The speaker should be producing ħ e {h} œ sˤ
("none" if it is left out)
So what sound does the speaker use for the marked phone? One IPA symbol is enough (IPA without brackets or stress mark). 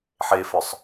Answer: f